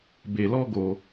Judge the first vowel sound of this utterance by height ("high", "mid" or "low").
mid